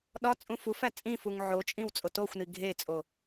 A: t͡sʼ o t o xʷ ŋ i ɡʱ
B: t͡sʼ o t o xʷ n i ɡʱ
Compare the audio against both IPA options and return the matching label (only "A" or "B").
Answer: B